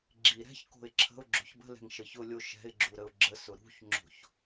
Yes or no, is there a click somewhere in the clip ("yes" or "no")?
yes